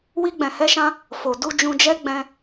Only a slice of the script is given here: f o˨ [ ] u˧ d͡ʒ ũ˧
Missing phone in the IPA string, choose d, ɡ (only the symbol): d